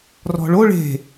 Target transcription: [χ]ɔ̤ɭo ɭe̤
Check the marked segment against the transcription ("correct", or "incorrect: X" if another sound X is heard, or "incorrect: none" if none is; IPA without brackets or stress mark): incorrect: r